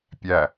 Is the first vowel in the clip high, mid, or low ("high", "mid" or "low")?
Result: low